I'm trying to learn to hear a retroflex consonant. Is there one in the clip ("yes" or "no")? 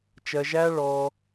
yes